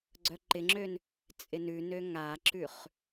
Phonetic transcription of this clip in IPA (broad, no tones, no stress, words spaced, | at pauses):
ɡ͡ǀœǃɪŋ͡ǁøn | t͡sʼɪnʉnø ŋaǁʉχ